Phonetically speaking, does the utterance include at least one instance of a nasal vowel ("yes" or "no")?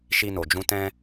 yes